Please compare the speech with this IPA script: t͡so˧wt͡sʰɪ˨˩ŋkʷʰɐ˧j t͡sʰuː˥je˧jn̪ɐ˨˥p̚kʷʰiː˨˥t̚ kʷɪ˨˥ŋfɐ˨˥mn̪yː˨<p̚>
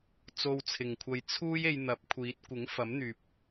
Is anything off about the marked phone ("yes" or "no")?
no